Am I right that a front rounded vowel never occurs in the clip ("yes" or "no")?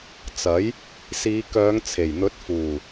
no